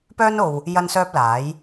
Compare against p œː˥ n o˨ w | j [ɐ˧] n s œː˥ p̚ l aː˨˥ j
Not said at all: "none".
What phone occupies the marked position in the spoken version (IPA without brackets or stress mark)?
ɐ˥